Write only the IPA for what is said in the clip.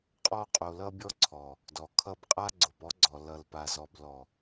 qʼ ɔ˧ qʼ o˨ l ʌ˧ bʲ ɔ˧ ǀʰ ɔ˨ | d ɔ˨ kʰ ʌ˧ b qʼ a˦ ɡ͡ǀ o˨ p ɔ˦ ɡ͡ǀ ɔ˨ l ʌ˨ l p a˨ z ɔ˨ b l ɔ˨

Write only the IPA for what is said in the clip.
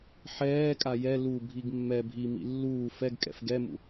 ħ ɛː kʼ a j ɛ l u bʱ i ɡ mː ɛ bʱ i m ḭ lː uː f ɛ ɡ kʼ ɛ̰ f ɡ ɛ m ṵ

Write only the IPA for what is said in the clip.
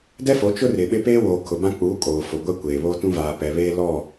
d ɛ˦ f o˨˦ t͡ʃ ʊ˦ r ɪ˨ ɓ ɪ˦ p eː˦ w oː˨ kʰ ʊ˨ b ã˦ k͡p uː˨˦ kʼ oː˨ f o˨ ɡʷ ɛ˦ kʷ eː˨ β oː˦ t ũ˦ v aː˨ p ɛ˨ β eː˦ l ɔ˦˨

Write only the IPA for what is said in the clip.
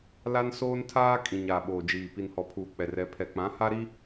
l a˦ n s oː˦ n tʰ aː˦ kʼ ĩ˨ ɲ aː˨ ɓ oː˨ d͡ʒ iː˨ p i˨ n h ɔ˨ pʰ uː˨ k͡p ɛ˨ r ɛ˨ pʰ ɛ˨ k͡p ã˨˦ h a˦ ɾ i˦

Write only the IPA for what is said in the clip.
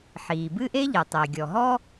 ħ iː˩ b ɨ˥ ʔ e˥ ʎ ɨ˩ tˤ e˩ ɡʲ ɔ˩ ɦ ɔ˥

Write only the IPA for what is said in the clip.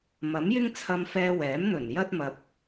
m ɐ˨˥ m j ɪ˥ ŋ t͡sʰ ɐ˧ m f ɛː˧ w ɛː˨˥ m n̪ ɵ˨˩ n j ɐ˥ t̚ m ɐ˧ p̚

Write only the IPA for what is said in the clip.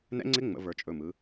n ɛ̰˦˥ ŋ͡ǀ ɪ˦˥ ŋ͡m ə̰˩˧ v ə˞˩˧ t͡ʃʼ ɵ˩˧˩ m ɯ˩˧

